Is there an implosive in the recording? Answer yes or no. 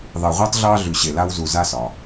no